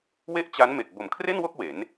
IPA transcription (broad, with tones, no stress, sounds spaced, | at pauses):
w e˥˩ ʔ t͡ɕ a˦˥ n m e˨˩ k̚ b o˩˦ m kʰ r e˥˩ n w o˥˩ k̚ w e˩˦ n